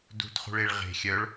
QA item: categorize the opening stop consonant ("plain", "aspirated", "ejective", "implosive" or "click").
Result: plain